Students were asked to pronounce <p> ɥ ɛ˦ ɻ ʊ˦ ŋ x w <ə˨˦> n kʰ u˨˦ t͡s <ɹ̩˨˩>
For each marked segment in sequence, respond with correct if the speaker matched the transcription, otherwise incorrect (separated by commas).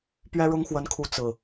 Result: correct, correct, correct